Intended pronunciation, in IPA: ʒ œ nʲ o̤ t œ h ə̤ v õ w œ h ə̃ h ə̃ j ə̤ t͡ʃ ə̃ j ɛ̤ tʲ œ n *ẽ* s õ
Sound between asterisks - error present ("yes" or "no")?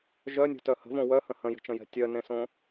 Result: no